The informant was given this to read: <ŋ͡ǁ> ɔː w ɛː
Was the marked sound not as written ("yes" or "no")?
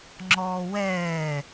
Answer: no